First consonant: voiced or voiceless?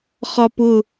voiceless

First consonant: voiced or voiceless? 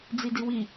voiced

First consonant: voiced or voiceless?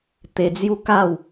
voiceless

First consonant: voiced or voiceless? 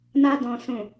voiced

